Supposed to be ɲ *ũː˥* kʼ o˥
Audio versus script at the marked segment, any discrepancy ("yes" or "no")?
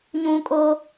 no